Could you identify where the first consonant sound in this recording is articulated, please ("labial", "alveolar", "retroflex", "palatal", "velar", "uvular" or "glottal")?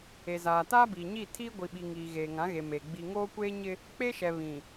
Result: alveolar